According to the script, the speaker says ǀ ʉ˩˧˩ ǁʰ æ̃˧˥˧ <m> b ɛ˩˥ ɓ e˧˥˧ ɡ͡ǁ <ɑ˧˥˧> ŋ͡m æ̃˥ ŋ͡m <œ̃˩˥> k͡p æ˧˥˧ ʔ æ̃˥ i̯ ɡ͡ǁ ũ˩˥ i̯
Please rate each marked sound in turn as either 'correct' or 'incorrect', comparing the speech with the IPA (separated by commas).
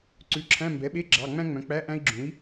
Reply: correct, incorrect, correct